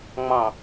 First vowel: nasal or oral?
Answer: nasal